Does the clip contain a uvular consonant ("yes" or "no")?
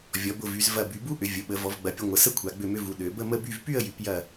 no